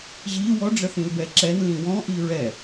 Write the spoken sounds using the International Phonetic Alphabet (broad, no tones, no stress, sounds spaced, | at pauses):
ʑ i w ɔ ɖ͡ʐ ə θ ĩ l b ɛ ǁ ɛ n l ĩ w ɔ̃ ʔ i ɹ ɛ